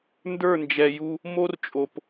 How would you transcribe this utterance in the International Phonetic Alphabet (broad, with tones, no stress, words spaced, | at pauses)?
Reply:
ndə˞˦˨nd͡ʒɛ˨ju˦ | mo˦rt͡ʃʼo˨p